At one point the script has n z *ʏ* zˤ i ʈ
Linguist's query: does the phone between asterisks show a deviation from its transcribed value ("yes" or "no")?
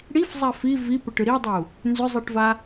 no